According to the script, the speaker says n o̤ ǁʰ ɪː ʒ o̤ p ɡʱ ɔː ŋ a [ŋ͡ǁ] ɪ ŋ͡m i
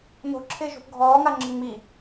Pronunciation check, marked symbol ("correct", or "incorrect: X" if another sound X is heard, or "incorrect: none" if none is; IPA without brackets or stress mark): correct